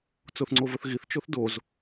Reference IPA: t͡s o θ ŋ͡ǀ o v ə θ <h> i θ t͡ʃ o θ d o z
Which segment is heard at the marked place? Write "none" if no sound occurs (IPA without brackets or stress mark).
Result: ɣ